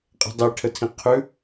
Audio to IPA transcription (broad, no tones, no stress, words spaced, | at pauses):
qʼɛ̤dˤeʈʰətʰĩ qʰʉ